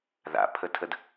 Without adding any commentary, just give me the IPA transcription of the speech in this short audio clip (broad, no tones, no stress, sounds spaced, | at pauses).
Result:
ð a̰ pʰ ə tʰ ə d